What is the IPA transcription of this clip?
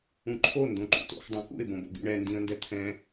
ũǃʰo ndõǃṵto̰x dˤõkṵɪ̯ bõbo̰bḭɳɛ ndĩə̯ndɛt̪ʰɛ̃

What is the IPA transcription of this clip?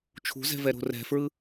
t͡ʃʰṳzɛ̤vɛɾo̤ rɛ̤fɹɯ

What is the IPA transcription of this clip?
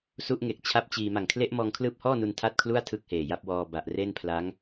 su˦˥ʔŋe˨˩k̚ t͡ɕʰa˥˩p̚t͡ɕiː˧ ma˨˩ŋkʰle˦˥ʔmɔː˧ŋkʰlɯː˦˥p̚ hɔː˥˩nu˧n tʰa˥˩t̚kʰlu˥˩a̯ tʰɯ˥˩k̚heː˨˩ja˥˩p̚ wɔː˧ba˨˩ʔre˥˩n pʰla˦˥ŋ

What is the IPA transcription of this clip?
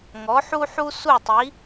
ŋɔ˩˥ħu˥ħu˥ su˥˩tˤi˩˥

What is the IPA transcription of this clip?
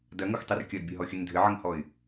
dɐŋoxtˤɘr kʲɐdbʲɘɦɔxʲɘn dʱɘʕɘŋhɔɪ̯

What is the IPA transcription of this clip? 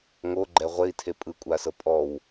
ŋoɡ͡ǃɛ ʁʷei̯tʰe pʼɯkʷʼasɤ pʼɔw

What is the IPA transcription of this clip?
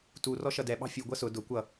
tu rɔʃʌdɛ ɓɑ̤fʲu ɡʷʌsʊ dʊ kʷʌ

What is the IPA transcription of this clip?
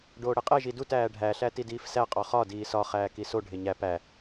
ɖoːɽeqʼe ʒidut æːɖʱæ ɬætidiːfsæ qʼɒχɒ diːsɒ χæːkiso ɖʱeɲæ pæ

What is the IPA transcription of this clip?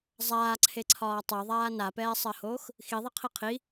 zˤaːǀʰeǀʰɒː tˤɜðˤaː napɛːsˤɜhoːx | xiðˤɛqʰi qʰi

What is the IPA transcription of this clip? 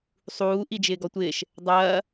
sˤuː ʔid͡ʒɪːɡɔtʷɪːʃ | dˤɐː

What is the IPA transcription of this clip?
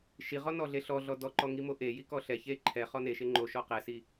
ʃiʁɔ nɔɮeɬɔɮɔ dɔǃɔ ŋimoʔeji kɔɬɛçe ǃʰɛ χɔneʃe ŋ͡ǃoʃɔ qɛsi

